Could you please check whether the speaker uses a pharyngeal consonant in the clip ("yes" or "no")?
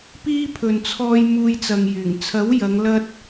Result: no